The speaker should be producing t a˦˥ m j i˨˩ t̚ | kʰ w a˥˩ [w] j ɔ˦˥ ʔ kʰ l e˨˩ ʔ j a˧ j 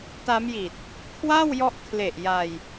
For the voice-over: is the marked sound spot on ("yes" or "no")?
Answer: yes